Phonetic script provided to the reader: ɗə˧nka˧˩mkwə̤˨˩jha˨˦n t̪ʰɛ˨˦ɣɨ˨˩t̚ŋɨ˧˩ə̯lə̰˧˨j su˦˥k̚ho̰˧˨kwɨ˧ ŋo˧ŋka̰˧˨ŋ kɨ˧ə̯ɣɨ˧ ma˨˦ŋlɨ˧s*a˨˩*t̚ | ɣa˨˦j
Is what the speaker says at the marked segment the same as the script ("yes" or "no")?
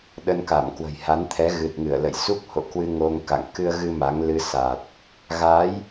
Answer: yes